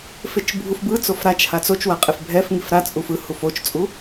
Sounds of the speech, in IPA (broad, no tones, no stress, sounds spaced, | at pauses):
f e t͡ʃ bʱ u f b ɯ t͡s o f ɾ a t͡ʃ h a t͡s o t͡ʃ w a qʼ e f bʱ ɛ f ŋ i f ɾ a t͡sʼ u f ɯ h u f o t͡ʃ t͡sʼ u